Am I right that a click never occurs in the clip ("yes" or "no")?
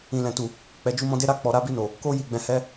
yes